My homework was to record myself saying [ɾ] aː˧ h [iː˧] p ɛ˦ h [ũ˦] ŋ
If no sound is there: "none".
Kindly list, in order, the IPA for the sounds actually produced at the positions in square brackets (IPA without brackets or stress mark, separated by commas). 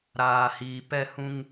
ɾ, iː˧, ũ˦